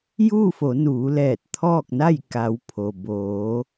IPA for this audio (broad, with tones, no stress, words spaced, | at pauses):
juː˥˨fo˩˧nuː˩˧lɛː˧˩t̚ t̪ʰɔː˥˨k̚na˥˨jka˩˧w pʰo˩ boː˩˧